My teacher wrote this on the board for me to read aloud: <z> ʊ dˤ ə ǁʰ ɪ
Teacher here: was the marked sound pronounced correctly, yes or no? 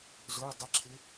yes